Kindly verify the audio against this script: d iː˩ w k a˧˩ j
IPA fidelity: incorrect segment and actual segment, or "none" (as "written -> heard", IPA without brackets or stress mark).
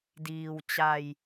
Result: k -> t͡ɕ